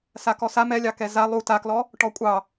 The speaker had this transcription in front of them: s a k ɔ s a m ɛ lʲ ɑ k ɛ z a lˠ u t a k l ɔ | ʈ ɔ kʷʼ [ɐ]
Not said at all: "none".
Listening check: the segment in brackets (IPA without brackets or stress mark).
ɑ